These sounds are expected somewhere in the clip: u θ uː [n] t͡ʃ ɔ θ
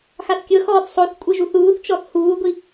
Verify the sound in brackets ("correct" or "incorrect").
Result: incorrect